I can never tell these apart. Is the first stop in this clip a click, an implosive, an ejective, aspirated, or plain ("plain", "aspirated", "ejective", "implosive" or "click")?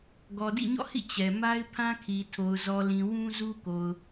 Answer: plain